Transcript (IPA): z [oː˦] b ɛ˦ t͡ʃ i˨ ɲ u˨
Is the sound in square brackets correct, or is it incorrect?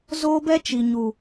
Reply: correct